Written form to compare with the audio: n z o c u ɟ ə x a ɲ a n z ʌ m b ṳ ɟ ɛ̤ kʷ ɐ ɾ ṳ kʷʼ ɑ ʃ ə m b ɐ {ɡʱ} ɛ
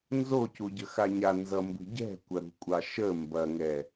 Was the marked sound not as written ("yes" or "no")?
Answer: yes